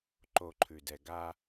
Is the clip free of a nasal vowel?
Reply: yes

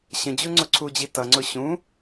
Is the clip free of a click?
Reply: no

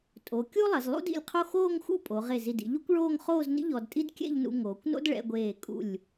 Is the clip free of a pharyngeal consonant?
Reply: yes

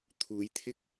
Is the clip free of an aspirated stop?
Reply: no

